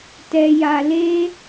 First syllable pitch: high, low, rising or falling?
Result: high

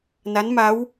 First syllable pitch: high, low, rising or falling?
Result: rising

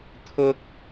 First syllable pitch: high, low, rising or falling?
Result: high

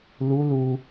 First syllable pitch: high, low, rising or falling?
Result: rising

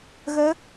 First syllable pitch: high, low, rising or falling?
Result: rising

